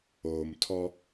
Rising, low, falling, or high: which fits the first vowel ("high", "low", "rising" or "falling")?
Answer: low